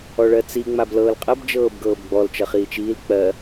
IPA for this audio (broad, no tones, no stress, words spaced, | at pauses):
ɔɭɜt͡si ŋ͡mablɤːlqʼɜb d͡ʒɤːbɡɤːbɡ͡bɔl t͡ʃʌχiːt͡ʃiːl k͡pɜ